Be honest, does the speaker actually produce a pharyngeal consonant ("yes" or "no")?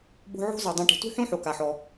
yes